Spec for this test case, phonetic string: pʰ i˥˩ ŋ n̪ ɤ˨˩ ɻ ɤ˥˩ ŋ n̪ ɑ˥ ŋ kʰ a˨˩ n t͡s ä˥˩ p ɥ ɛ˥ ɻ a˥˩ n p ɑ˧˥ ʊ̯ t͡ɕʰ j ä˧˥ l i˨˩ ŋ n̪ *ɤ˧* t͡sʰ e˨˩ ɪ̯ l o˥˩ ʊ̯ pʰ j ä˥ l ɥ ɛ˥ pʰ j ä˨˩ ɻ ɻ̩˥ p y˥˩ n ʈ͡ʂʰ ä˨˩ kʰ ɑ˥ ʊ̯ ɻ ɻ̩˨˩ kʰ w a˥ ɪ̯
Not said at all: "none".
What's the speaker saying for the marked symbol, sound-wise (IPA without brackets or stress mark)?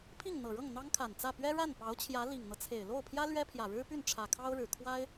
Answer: ɤ˦